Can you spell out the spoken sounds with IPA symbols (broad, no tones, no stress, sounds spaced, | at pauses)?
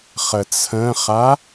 χ ə t͡sʰ ə̃ χ a